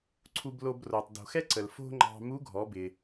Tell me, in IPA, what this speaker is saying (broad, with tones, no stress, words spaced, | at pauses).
ǀʰu˧blo˧bro˩tˤ do̤˩xɛ˥ ǀə˩l fo̤˥ŋ͡ǃɑ̤˧ mu˧˥ɡʱɔ˩˧bɪ˩